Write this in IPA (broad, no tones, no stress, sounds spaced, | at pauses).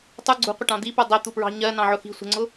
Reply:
tˤ u ɡ͡ǀ ṳ qʷ ɪ ʈ ɑ̃ d̪ i p u dˤ ɜ t̪ u p ɹ ɑ̤ ɲ ɜ n ɑ̃ ʕ ʊ x i̤ sʷ ə̤ ŋ͡ǀ ʊ